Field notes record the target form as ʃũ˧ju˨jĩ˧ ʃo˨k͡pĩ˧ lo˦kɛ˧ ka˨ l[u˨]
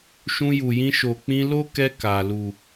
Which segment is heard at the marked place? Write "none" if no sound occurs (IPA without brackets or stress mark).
u˨